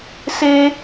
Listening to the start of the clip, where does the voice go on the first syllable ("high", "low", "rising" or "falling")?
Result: high